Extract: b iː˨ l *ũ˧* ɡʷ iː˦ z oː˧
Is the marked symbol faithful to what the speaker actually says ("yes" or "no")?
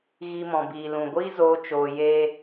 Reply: no